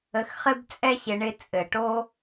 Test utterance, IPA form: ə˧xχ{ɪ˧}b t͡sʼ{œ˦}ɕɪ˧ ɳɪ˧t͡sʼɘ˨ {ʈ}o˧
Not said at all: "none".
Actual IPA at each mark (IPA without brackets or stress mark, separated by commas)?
ɪ˦, ɛ˦, ʈ